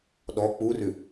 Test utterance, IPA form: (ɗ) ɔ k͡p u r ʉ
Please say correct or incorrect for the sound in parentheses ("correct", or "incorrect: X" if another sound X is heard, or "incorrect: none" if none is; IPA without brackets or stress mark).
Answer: correct